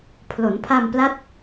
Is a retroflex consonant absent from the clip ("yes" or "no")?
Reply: yes